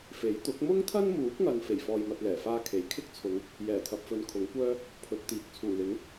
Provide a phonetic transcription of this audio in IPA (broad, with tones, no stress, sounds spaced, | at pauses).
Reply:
f e˨˥ j t̪ ʊ˨˥ k̚ m ʊ˥ ŋ t̪ʰ ɐ˥ n m uː˨˥ k̚ ŋ ɐ˨ n f e˨˩ j f ɔː˨ j m ɐ˨ t̚ l ɛː˨˩ f aː˥ kʰ e˨˥ j kʰ ɪ˥ k̚ t͡sʰ ʊ˨˧ ŋ | j ɛː˨˩ t̪ʰ ɐ˨ p̚ f ɵ˨˧ n kʰ ʊ˨˥ ŋ kʷ œː˥ | pʰ ɵ˨˥ t̚ t̪ iː˨ k̚ t͡sʰ uː˨˩ l ɪ˨˥ ŋ